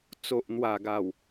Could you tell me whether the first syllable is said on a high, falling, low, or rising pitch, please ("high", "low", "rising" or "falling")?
low